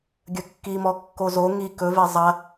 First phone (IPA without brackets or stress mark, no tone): ɡʲ